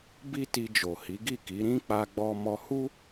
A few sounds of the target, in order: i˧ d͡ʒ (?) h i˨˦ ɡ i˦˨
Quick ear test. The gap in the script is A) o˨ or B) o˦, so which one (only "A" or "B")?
A